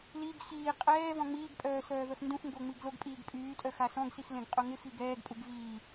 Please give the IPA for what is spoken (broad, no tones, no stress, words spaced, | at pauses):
liɡ xiː qʼɛː vɔ̃ŋ͡miːɡpʼœː sœːvœxndũxŋɡo ŋ͡miɡloɡpʼiːɡ pʼyːtʼœ xasɔ̃ɡsix lẽɡqʼoŋɪxi ɡɛːɡpʼuɡ viː